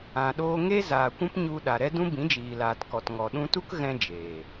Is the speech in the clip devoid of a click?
yes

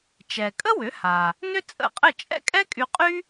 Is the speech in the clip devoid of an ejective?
no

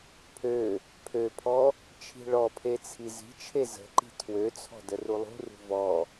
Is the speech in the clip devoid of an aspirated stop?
no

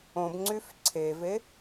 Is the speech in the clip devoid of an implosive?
yes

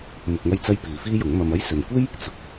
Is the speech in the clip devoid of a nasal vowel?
yes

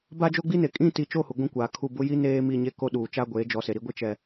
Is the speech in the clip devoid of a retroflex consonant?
yes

